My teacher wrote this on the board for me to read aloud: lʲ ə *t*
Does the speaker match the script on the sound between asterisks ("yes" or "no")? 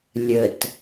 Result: yes